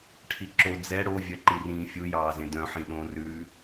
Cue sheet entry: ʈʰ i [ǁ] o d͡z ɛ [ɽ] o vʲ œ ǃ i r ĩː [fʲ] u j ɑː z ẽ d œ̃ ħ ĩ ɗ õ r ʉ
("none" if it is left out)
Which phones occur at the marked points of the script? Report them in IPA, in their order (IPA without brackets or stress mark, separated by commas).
ǁ, ɽ, fʲ